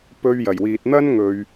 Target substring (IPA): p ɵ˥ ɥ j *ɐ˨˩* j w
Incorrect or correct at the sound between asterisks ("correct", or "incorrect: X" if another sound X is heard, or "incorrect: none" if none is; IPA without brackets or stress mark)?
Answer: correct